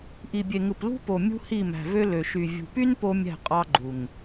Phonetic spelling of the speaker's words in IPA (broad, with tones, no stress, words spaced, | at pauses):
ʔi˨bʲe˨ ŋɯ˨plṳ˦po˨ mʲṳ˦hi˦˨mæ̤˨vø˦ lø˨ʃy˨ vʲṳ˨py˦n po˦mʲæ̤˦˨ qʼɑ˦ɡ͡ǃu˨ŋ